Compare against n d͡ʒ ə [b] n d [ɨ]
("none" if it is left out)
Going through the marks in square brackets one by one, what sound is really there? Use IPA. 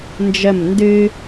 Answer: m, ɨ

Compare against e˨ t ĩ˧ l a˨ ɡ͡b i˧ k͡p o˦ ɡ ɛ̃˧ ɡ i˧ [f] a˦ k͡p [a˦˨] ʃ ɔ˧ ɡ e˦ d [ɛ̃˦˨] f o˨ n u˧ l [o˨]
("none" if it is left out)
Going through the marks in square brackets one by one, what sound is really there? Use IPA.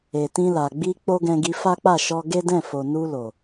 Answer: f, a˦˨, ɛ̃˦˨, o˨

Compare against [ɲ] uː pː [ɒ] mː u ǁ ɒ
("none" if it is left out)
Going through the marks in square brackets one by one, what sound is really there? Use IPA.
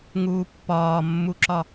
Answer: ŋ, ɒː

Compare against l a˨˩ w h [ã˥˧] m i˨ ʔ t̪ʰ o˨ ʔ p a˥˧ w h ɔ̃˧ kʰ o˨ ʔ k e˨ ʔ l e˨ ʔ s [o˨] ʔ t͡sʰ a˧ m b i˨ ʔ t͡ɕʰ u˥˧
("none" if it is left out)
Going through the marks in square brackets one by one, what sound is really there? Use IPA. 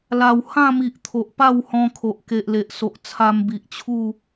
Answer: ã˥˧, o˨

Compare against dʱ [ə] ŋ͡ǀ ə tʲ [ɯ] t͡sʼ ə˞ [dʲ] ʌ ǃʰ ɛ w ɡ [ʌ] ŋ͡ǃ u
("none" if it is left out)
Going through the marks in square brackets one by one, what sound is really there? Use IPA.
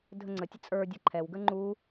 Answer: ə, ə, dʲ, ə

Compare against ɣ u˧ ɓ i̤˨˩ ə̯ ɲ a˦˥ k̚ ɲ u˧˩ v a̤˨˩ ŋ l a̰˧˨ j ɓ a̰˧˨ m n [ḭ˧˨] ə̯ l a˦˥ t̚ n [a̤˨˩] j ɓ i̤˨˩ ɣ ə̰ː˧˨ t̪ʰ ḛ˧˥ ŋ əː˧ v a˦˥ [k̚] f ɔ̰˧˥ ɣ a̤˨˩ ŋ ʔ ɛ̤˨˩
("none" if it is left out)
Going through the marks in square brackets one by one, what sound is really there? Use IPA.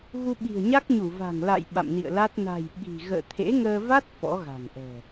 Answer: ḭ˧˨, a̤˨˩, t̚

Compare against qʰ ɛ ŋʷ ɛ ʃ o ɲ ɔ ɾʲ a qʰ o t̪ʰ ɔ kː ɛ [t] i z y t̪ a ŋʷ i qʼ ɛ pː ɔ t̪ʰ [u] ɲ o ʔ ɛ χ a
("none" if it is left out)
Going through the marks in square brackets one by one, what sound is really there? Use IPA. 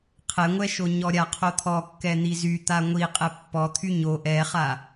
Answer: n̪, y

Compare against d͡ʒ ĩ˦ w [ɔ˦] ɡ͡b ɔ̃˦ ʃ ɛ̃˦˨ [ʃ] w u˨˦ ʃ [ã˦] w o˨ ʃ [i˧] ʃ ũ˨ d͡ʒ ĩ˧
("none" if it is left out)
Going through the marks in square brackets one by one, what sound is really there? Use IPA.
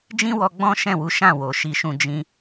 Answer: ɔ˧, none, ã˦˨, i˨

